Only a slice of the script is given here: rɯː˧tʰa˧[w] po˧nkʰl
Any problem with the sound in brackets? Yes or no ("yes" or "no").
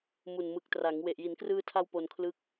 no